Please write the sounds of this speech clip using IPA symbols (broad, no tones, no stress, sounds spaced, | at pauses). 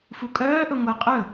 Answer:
f u kʼ œː ʔ ɵ ŋʷ e qʼ ɵ